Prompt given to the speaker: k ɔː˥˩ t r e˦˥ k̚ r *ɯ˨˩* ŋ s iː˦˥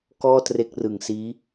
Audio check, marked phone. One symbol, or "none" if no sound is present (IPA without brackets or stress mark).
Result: ɯ˨˩